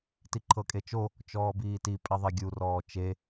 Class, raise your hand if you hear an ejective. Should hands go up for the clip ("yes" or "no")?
yes